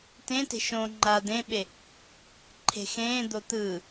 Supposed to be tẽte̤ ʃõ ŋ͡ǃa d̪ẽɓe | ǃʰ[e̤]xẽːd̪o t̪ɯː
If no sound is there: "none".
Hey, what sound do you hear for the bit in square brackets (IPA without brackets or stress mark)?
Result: e̤